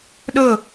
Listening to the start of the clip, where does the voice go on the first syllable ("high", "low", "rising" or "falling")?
falling